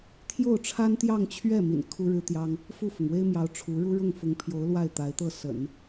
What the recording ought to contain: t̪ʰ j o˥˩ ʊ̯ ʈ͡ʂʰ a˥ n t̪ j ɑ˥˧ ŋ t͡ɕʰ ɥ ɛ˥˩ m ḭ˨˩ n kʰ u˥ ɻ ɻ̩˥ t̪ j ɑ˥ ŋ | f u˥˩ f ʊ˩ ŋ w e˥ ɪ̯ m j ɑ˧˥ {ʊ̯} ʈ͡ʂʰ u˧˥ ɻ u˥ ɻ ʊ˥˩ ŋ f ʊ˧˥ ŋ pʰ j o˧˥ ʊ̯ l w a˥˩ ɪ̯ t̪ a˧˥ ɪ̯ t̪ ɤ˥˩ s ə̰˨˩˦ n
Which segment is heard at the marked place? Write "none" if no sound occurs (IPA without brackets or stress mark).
ʊ̯